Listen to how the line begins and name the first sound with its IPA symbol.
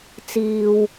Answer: t͡s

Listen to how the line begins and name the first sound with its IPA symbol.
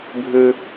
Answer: bʱ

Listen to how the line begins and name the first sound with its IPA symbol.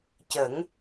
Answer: c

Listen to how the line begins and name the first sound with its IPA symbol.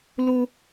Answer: l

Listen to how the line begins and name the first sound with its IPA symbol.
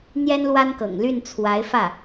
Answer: n̪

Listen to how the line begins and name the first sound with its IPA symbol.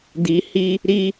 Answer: d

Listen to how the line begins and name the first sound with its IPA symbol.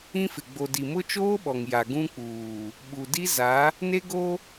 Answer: ĩ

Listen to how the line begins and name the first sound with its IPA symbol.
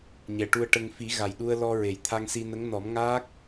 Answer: ɲ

